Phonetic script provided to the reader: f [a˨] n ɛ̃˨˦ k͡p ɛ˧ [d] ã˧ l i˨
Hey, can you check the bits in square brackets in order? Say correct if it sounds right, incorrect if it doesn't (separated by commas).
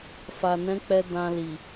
correct, correct